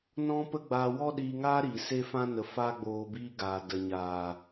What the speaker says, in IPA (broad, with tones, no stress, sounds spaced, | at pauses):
n ɔ̃˦ p ə˦ ɡ͡b aː˧ w ɔ˦ ɗ iː˧ ŋ aː˦ ɾ iː˨ s e˦ f ã˦ n ə˨ f aː˦ ɡ͡b oː˧ b iː˦ ɡ aː˨ d ə˨ ɲ aː˨